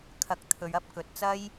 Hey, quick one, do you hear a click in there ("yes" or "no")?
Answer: no